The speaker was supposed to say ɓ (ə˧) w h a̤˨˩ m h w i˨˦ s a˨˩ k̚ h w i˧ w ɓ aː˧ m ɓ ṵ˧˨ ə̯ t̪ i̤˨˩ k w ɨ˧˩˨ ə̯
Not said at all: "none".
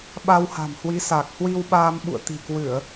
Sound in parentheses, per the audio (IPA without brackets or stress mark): a˧